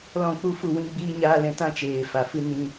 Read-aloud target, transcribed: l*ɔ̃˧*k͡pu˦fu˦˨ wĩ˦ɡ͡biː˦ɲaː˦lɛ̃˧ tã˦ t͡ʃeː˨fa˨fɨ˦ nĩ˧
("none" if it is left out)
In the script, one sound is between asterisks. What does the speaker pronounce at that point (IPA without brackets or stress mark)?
ɔ̃˦˨